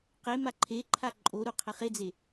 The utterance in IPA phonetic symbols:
qe maǃʰe ǃʰaǃʼo ɾuqʰɛχed͡ze

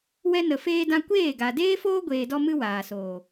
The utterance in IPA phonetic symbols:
wɛ˦nə˧feː˦dã˦ kʷeː˦˨ɡa˨ deː˦foː˦ ɡʷeː˧dɔ˦mɨ˦ waː˨soː˨

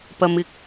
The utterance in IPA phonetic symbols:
pɐ˨mɪ˨k̚

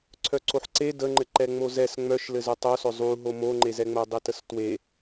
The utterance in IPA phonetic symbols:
ǀʰœǀoħǀe dəŋ͡ǃɘ ǃɛŋ͡mozɛs ŋ͡mœʃlɘ zœtˤosœ zˤuɦo moŋ͡ǃezɛŋ͡mo dˤitəstwe

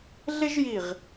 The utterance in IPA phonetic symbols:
ɮɪ˥ʒji˧˩ʁ

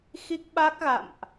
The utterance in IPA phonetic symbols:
xi˦˥k̚ɓa˦˥k̚ɣa̰˧˨mʔ

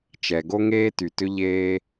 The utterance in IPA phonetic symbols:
t͡ʃɛ˩ɡo˥ ŋeː˥ty˩tʏ˥ ʎeː˥

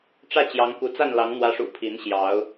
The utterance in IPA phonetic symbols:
ʈ͡ʂä˥˨t͡ɕjɑ˨˦ŋku˨˦ t͡sa˥˨nlɑ˨˦ŋn̪wä˨˦ʂṵ˨˩ pʰi˨˦nɕjɑ˨˦ʊ̯

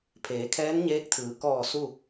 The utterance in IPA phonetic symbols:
pʰeː˩˧kʰɛː˧˥nɲeː˧˥k̚t̪ʰɯː˩˧ kɔː˧˩ su˥˨

